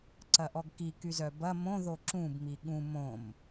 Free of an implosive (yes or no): no